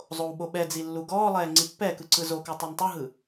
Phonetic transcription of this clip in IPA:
zˤ o w ɓ o ɓ ɛ d͡z i lː u ɡ ɔː lˠ ɛː ŋ͡ǀ i pː ɛ k ɯ ǀ ɯ z o k u tˤ u n tˤ ɯ ɦ ɯ

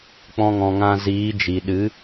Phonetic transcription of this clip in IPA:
k͡p ɔ̃˧ ŋ ɔ̃˨ ŋ ã˧ z iː˨˦ d͡ʒ i˨ ɗ ɨ˨˦

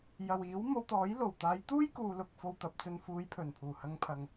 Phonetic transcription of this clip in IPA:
j ɐ˨ w iː˨˥ w m o˧ w t̪ ɔː˨˥ j l o˨˩ w t̪ aː˨˧ j t̪ uː˥ j k uː˨ l ʊ˨ k̚ f o˧ w t̪ ɐ˨ p̚ t͡s ɵ˧ n f uː˨˧ j pʰ ɵ˨˩ n pʰ uː˨˩ h ɐ˨˧ ŋ pʰ ɐ˨ ŋ

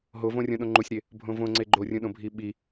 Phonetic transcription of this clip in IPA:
ɦ o v õ rʲ õ ɗ õ ŋ͡ǃ u sʲ ɾ e | bʱ õ v õ ŋ͡ǀ e ɡ͡ǃ o rʲ ũ ɗ õ bʱ i ɓ i

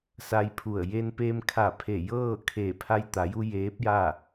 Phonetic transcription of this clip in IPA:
s a˧ j pʰ u˧˩ ə̯ j e˧ n p eː˧ m kʰ a˧˩ pʰ e˧˩ j ɤː˥˨ kʰ eː˧˩ pʰ a˧ j t̪ a˩˧ j u˧ j eː˧˥ p̚ j a˥˨

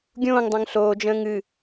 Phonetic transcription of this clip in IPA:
ɡʲ õː ŋ dˤ õ ŋ ɬ oː d͡ʒ ə̃ː ŋ ɨ

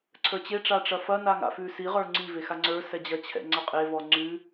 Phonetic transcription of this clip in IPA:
ǀʰ ə˞ t͡ɕ e ʈ͡ʂ a ʈ͡ʂ ɐ f ɐ n a ŋ a̰ f ʉ s i ʁ ə˞ ŋ͡ǀ i v e x a ŋ͡ǀ ə˞ s ɛ d͡ʑ ɐ t͡ɕʰ ɛ̰ ŋ͡ǀ ɐ qʼ e v ɔ ŋ͡ǀ ʉ

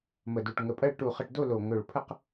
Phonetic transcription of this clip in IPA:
m ə˧˩ d u˧˩ ʈ ŋ ə˧˩ pʼ ɜ˥˧ ɭ ʈ u˧˩ χ ə˧˩ ʈ d o˥˧ l o˧˩ ŋ ɵ˧˩ ɭ pʰ ə˥˧ q

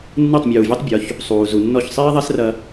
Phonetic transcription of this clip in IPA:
nː ɨ˥˩ tˤ mʲ uː˩ vʲ ɛ˥ tˤ bʲ ɔ˩˥ ç | sˤ uː˩ z u˩ nː ɔ˥˩ ç sˤ iː˥ ðˤ ɛ˥ s r ɐ˧

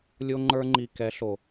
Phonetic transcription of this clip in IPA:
lʲ o˦ ŋ͡ǃ ə˞˦ ŋ͡ǃ i˧ k ɛ˨˦ ɬ o˨

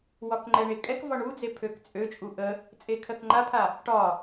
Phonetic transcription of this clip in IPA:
w ɒ k ŋ͡ǃ ɛ ɳ e kʼ ɛ k v ɒ ɳ u d͡z e pʰ ø k t͡sʼ ø t͡ʃʼ u ʔ ə | t͡sʼ e kʰ ɜ k ŋ͡ǃ a pʰ a | ʈ ɒ

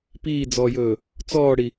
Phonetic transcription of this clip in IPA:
p iː d͡z ɔː j ɵː | t͡s ɔː ɽ i

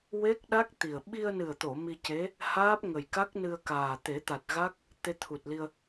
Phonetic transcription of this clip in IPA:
w e˦˥ k̚ ɗ a˦˥ k̚ t̪ i˨˩ ə̯ ɓ i˧ ə̯ n ɨ˨˩ ə̯ t̪ o˨˩˨ m i˧ c e˧˥ | h aː˦˥ p̚ ŋ ə˨˩ j k a˦˥ k̚ n ɨ˧ ə̯ k aː˨˩ t̪ e˨˩˦ t̪ a˨˩ t̚ ɣ a˦˥ k̚ | t̪ e˧ t̪ʰ u˨˩ t̚ l i˧ ə̯

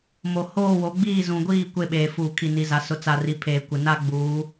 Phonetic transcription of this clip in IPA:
m o˨ h oː˦˨ w o˨˦ ɡ͡b iː˦˨ z ũ˨ ɡʷ iː˦˨ kʷ e˦˨ ɓ eː˨ f uː˨ kʰ i˨ n i˨ z a˨ s ʊ˨ t͡s a˨ r i˨ pʰ eː˨ kʷ ɪ˨ n a˦ ɡ͡b uː˨˦

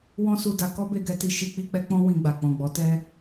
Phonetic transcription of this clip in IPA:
w ɔ̃˦ s u˧ d a˧ k ɔ˦ b e˧ ɡ ɛ˧ t i˧ ʃ i˧ k͡p i˧ k͡p ɛ˧ k͡p ɔ̃˦ w ĩ˧ ɡ͡b a˨ k͡p ɔ̃˨ ɡ͡b ɔ˨˦ t ɛ˦

